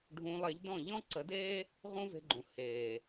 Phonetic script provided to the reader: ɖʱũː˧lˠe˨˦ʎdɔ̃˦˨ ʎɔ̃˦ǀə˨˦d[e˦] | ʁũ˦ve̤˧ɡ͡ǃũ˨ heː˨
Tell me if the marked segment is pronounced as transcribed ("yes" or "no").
no